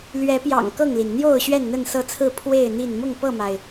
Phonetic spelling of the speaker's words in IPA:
l ɥ ɛ˨˦ p j ɑ̰˨˩ ŋ k ɤ˥˨ ŋ l i˩ n n̪ j o˥˨ ʊ̯ ɕ ɥ ɛ˥˨ n n̪ ə˥˨ n s ɤ˥˨ t͡sʰ ɹ̩˥˨ pʰ w e˥˨ ɪ̯ n̪ i˥˨ n m ʊ˥˨ ŋ p ɤ˥˨ m a˩ ɪ̯

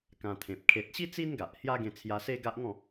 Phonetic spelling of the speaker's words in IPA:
k ã˧ t̪ʰ ẽ˨ p̚ kʰ e˨ t̚ ɕ i˦ t͡s i˦ n ɡ a˨ ʔ h j a˦ ɡ ẽ˧ t͡sʰ j a˧ s e˦ ɡ a˦ ʔ ŋ ɔ̃˥˧

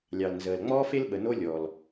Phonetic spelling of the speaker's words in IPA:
lʲ ɑ˩ l n z əː˩ l ŋ͡m ɔː˥ f e˥ l ɓ ə˩ n o˥ lʲ ɔ˩ l

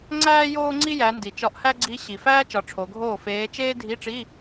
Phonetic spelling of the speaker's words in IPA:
ŋ͡ǀ æː˥ j oː˥ ŋ͡ǀ i˥ j æ˩˧ n d i˩ t͡ʃ ɒ˧˥ ʔ h æ˥ ɡ͡ǀ i˧˥ ɕ i˩ f æː˥ t͡ʃ ɒ˩˧ ʈ͡ʂʰ o˩˧ ɡʱ oː˥˩ f eː˧˥ t͡ʃ eː˥ dʱ i˧˥˧ ʈ͡ʂ i˧˥˧

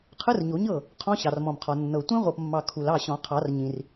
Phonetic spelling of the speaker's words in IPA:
qʰ ɯ˦˥ r ɲ o˨˩˦ ɲ ɤ˥˩ | qʰ ɔ̃˦˥ ɕ ɑ˨ r m ɔ̃˨ m qʰ ɔ˨ nː ɤ˨ tʷ ĩ˦˥ ʁʷ ɤ˨ p mː ɑ˨ kʰ u˨ l ɑ˥˩ ɕ ɔ̃˨˩˦ qʰ ɑ˨˩˦ r ɲ ĩ˨ r

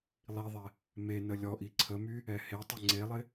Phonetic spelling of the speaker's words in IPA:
lˠ i ðˤ ɛ | m e n ə lʲ ɔ ʔ i ǀʰ ə m y | ɛ h e tˤ ɪ ŋ͡ǀ e lˠ ɪ

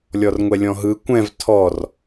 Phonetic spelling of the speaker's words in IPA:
lʲ ɔ r ŋʷ ɛ lʲ ɔ̃ ɦ ɯ kʷ ɛ̃ v tʰ ɔ r

